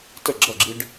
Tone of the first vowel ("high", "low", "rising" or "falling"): falling